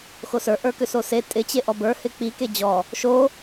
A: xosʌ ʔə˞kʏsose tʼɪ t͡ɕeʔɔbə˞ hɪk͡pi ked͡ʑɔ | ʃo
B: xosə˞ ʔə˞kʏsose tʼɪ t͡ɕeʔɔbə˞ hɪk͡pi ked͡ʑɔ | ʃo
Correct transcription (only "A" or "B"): B